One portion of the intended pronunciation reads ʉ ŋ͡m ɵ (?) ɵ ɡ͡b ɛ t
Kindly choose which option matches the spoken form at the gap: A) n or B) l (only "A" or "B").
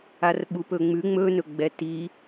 A